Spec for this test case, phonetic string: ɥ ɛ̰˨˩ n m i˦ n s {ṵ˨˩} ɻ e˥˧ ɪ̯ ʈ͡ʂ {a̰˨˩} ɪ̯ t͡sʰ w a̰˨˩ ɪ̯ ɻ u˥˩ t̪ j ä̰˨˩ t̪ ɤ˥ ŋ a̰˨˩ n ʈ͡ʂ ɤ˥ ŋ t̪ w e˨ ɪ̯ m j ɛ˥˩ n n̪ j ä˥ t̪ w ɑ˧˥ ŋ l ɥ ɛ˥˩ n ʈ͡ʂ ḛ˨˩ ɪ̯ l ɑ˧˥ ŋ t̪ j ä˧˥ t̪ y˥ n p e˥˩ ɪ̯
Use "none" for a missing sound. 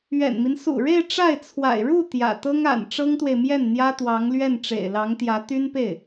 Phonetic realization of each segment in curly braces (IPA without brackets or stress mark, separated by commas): ṵ˨˩, a˥˩